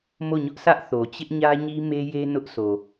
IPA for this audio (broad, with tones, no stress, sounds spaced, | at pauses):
m o˦˨ ɲ ʊ˦ ʔ sʰ ä˦ ʔ θ o˨ t͡ɕ ɪ˦ ʔ ɲ ä˦ ɲ i˦ m e˦ j e˦ n ʊ˦ ʔ sʰ o˨